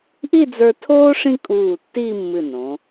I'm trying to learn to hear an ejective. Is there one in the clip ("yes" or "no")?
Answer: yes